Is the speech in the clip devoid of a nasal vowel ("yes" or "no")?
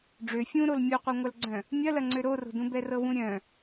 no